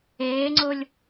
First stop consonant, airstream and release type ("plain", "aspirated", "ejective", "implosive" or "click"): click